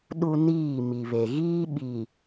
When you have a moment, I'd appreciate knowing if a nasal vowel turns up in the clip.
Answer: no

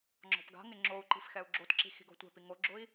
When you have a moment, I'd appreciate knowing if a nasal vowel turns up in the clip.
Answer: no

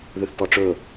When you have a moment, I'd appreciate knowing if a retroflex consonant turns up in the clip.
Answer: yes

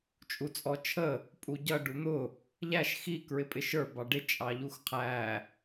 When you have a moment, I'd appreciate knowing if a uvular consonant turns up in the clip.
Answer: yes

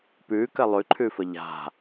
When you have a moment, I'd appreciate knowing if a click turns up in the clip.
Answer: yes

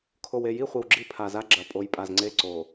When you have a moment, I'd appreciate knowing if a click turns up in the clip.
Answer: yes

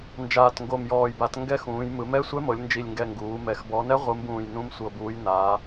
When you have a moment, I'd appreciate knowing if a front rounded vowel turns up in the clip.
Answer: no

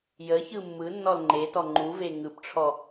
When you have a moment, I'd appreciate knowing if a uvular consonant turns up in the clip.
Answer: no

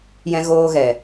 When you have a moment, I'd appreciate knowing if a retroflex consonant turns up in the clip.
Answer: no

